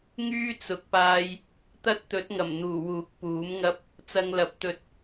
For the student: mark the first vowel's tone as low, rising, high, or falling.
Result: high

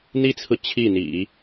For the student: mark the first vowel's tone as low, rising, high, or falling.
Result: high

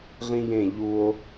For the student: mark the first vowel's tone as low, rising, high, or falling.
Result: high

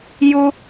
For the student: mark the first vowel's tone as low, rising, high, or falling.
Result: high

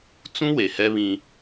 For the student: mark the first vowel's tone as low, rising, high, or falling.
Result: high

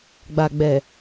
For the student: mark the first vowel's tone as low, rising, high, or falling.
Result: low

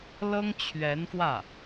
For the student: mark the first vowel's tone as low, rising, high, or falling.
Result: high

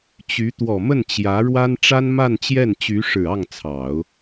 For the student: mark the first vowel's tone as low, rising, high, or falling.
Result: rising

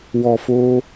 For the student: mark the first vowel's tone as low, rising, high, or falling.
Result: low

